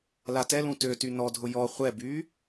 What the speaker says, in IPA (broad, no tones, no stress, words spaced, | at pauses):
latɛlũ tøty nɔdʱʊ jɔ χʷɛbyː